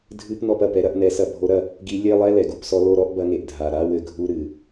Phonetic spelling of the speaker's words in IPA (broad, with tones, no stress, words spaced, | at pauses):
dʱɨ˧˥˧pnɔ˦˨pɐ˩pɛ˨˦ ɾɐ˧˥˧ʔnɛ˨˦sɐ˦˨ bʱo˨˦ɾɐ˦˨ | ɡi˨˦ lʲe˧˥˧ lˠɛ˧˥˧lɛ˩ɡu˦˨psɔ˨˦ lo˦˨ ɾɔ˧˥˧ʔbɐ˨˦ŋe˩ʔ dʱa˩ ɾa˧˥˧wɘ˦˨ɡʱu˧˥˧ ɾɨ˩